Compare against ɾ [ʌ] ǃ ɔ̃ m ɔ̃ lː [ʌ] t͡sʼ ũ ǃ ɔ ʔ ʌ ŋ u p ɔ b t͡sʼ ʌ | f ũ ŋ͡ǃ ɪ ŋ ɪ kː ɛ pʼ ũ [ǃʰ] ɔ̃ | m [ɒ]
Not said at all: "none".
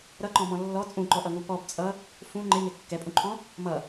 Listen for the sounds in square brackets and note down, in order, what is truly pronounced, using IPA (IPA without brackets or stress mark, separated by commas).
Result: ʌ, ɔ, ǃʰ, ʌ